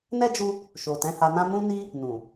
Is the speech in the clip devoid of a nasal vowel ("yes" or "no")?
no